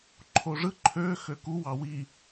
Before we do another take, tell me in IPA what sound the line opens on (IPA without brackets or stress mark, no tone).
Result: ǃʰ